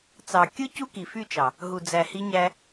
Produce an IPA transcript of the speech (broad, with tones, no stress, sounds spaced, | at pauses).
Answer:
t͡s ɑ˨ kʲ ɯ˦ c u˦ k i˨ f y˦˨ t͡ʃ ɑ˨ | ɦ u˨ d͡z æ˨ h i˧ ɲ æ˧